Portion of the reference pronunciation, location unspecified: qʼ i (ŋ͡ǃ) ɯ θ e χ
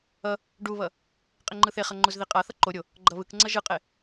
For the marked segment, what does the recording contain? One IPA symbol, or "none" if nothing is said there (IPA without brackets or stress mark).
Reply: ŋ͡ǃ